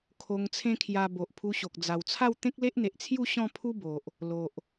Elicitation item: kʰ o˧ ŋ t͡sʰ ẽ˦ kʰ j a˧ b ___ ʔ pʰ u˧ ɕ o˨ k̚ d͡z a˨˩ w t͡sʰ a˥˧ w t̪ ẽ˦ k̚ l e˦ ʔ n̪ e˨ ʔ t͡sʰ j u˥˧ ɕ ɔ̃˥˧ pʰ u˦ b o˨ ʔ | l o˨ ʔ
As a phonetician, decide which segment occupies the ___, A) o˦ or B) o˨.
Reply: B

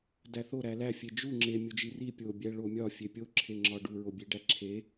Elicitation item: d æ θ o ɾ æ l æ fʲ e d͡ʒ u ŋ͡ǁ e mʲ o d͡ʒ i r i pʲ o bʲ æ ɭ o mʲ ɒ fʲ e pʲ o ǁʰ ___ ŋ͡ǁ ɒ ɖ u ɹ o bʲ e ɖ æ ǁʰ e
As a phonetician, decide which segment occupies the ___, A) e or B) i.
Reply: A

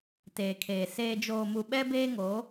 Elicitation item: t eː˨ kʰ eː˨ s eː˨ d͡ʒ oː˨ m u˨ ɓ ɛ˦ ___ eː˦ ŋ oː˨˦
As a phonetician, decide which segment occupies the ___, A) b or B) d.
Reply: A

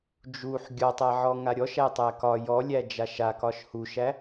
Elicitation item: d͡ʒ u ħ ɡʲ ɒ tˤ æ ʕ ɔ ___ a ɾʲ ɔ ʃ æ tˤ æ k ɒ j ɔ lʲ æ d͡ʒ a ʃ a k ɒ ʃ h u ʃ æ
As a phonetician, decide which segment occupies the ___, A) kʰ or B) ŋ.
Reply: B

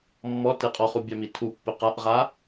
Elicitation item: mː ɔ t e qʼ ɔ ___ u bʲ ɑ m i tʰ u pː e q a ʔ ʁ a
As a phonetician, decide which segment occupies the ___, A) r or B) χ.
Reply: B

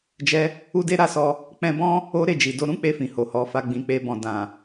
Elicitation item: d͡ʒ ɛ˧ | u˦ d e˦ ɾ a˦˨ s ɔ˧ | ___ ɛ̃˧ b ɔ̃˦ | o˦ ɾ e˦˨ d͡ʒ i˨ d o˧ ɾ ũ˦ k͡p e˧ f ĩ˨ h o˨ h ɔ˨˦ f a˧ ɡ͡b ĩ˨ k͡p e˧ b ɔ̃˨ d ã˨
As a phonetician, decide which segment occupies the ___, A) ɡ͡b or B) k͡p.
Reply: B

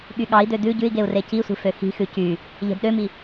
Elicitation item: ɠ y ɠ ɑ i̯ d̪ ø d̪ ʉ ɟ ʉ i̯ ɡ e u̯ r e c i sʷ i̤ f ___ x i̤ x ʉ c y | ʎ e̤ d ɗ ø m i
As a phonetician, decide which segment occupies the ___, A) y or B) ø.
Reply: B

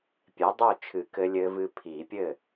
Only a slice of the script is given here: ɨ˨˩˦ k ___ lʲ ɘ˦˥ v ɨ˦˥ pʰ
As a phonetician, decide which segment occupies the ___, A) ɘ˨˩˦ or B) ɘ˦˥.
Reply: B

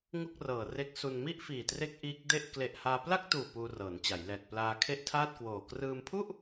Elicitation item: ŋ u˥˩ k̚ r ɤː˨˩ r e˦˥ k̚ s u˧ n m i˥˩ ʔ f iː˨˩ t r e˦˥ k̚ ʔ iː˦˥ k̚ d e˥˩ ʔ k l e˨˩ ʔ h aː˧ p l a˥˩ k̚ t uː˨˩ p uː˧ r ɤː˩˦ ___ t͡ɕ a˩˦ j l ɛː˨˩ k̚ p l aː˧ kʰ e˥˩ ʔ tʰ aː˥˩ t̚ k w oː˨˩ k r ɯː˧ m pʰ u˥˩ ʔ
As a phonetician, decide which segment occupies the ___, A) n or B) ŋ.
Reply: A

